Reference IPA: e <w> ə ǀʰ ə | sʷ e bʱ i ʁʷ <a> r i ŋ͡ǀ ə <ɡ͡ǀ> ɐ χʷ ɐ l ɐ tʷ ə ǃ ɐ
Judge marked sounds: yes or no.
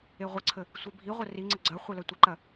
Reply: no, no, yes

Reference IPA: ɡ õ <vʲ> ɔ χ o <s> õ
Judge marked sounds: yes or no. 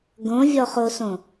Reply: yes, yes

